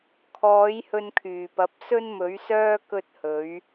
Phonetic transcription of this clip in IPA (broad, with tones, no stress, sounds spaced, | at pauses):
kʰ ɔː˨˥ j h ɵ˧ n kʰ yː˨˩ p ɐ˨˥ p̚ s ɵ˥ n m ɵ˨˥ ɥ s œː˥ k ɵ˥ t̚ h ɵ˨˥ ɥ